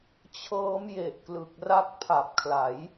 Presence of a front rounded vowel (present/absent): absent